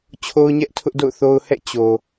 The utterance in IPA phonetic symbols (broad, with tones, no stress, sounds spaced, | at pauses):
t͡ɕʰ o˦ ʊ̯ ɲ ɛ˦ ʔ tʰ ʊ˦ ʔ d o̰˦˨ ʊ̯ θ o˦ ʊ̯ h ɛ̰˦˨ t͡ɕ o˨